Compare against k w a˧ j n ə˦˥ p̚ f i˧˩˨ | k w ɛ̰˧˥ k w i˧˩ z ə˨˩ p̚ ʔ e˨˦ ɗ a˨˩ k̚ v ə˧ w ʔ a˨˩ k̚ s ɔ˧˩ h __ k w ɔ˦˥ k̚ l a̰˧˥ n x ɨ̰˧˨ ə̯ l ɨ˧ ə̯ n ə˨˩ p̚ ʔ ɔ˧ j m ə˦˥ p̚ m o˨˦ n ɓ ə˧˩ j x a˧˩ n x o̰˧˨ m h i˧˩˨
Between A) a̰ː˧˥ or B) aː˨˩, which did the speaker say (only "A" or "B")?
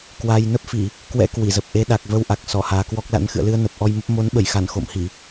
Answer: B